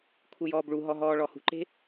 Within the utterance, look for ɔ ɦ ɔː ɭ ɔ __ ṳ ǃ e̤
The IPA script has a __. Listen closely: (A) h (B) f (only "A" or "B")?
A